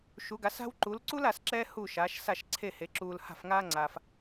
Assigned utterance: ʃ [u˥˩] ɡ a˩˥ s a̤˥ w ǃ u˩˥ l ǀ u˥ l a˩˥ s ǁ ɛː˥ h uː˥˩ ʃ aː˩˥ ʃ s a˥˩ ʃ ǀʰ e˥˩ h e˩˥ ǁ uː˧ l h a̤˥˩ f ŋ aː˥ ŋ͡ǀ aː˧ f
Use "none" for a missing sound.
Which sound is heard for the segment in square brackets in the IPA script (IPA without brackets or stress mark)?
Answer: u˩˥